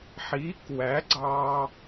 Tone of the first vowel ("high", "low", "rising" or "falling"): rising